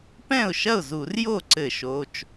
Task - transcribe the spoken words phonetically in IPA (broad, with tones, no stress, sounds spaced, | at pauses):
p ɛ̃˥˩ ʊ̯ ʃ ɐ˥˩ ʊ̯ z u˧˩˧ r j o˥˩ ǀ ɘ˧˩˧ ʃ o˩˧˩ t͡ʃ